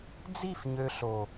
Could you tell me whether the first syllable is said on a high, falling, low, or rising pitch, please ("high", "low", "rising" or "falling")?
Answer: falling